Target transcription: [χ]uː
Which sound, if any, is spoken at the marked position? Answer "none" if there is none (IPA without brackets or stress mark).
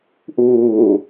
ʔ